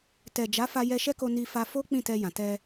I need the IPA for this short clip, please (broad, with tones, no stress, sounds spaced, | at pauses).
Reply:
t ɛ˨ d͡ʒ a˨˦ f a˧ j ɛ˧ ʃ ɛ˦ k o˧ n i˧ f a˧ f o˦ k͡p ĩ˦˨ t ɛ˧ j ã˨ t ɛ˧